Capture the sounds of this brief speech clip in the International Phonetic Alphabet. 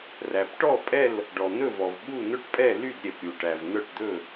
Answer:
ræ˩pʈɔ˥˨pʼɛ˥˨l | ɖɔ˩n̪ɵ˥˨vɔ˩vɓu˥˨ n̪ɵ˥˨ʈpʼɛ˥˨ ly˥˨d ɾʲɛ˩pɾʲu˩ʈæ˩v nœ˥˨ʈ d̪ɵ˥˨

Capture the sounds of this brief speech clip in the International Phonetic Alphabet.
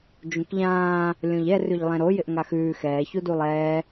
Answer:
d͡ʒũkʎãː | lʲõʎɛ rʉʎlˠɛ̃ɾo jɪʔŋaxʉː xɛː çudulˠɛː

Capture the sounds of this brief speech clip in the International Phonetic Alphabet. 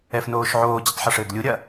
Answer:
ɛfnoːʃʕoː d͡ʑɨtˤħuʂɘːɡlʲu ɾʲɐ

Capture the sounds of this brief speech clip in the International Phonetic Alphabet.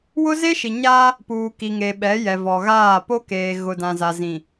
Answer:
wʊ˦ze˦ʃi˨ ɲa˦ | puː˨ki˨ŋe˨ ɓɛ˨˦jɛ˨vɔ˨ɣaː˦˨ po˦keː˨ ɣʊ˨dã˨za˨ zĩ˨

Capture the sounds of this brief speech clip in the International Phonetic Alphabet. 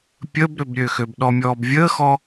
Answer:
pʲəːbɾøbɾʲøxøb ɗɔmʲɔːbvʲəːxɔ

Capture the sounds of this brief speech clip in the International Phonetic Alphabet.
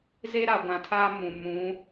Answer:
ze˦ɾa˨ɡʷã˨tʰaː˦ mũ˨mũ˨˦

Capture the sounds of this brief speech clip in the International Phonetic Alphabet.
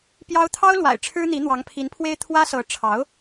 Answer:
pjɑ˥ʊ̯ t̪ʰɑ˥ʊ̯lwa̰˨˩ɪ̯ ʈ͡ʂʰɻ̩˥n̪i˧˥ n̪wɑ˧˥ŋpʰi˧˥npʰwe˥ɪ̯ t̪ʰwä˥sɤ˧˥ ʈ͡ʂʰɑ˧˥ʊ̯

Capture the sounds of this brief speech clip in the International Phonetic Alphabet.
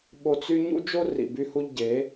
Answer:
ɓo˧t͡s y˦ ɲṵ˦d͡ʒo˦ rḭ˨by˧hu˧ʎ ɟe˨˦

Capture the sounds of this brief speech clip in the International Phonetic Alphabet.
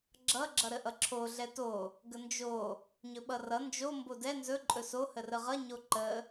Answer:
ɡ͡ǁʌ ɡ͡ǁʌɾəʔʌǁʰo ɮɛto | ɡənd͡ʒo | ɲɵɓʌrʌ nd͡ʒo mbodɛ nzɵ ǃʼɵso hərəʁʌ ɲoǃə

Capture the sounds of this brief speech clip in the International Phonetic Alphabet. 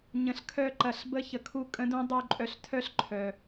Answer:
ɲə̃˨ɬkʰœ˧ǃɐ˨ɬ bə˧ çə˨kʰu˦ kʼə̃˦dũ˦dˤu˦˨ǃʼœ˧ɬ tʰœ˦ɬǃʰœ˨

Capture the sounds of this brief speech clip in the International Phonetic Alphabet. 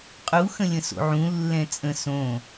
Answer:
qʼu xə̃lʲə̃so̰ʕũ lːɛ̃t͡sʼə̃ sõ

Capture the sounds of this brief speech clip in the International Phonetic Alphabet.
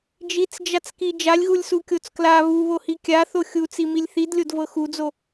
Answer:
d͡ʒit͡sd͡ʒat͡ski d͡ʒalʲɣulʲsukʲot͡s kla βuβohi kʲaθo xʲut͡similʲ θidlʲodvɤ xud͡zo

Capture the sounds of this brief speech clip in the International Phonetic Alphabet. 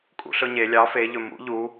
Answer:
kʼṵɬɵɲe lʲɑ feʎɵ mṵ ʎu

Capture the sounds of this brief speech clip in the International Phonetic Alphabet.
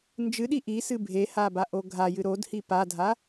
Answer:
nd͡ʒɨɗi ʔisɨ bʱehabaʔo ɡʱajɨ ɾodhi padʱa

